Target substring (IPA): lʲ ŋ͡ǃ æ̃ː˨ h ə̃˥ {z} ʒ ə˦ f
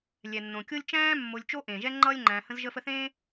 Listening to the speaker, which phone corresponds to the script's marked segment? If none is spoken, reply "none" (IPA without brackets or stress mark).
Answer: z